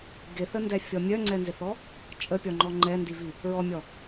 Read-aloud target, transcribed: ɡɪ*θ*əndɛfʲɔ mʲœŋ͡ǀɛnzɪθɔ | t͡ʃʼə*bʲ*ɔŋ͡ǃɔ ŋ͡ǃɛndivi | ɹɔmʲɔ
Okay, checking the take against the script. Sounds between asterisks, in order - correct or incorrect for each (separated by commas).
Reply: correct, incorrect